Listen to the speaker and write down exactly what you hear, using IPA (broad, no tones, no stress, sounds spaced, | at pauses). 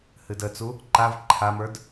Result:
h ɨ d ə t͡s u | ǃ a v ǃʰ a m ə˞ d